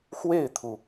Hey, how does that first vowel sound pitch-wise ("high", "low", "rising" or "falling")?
falling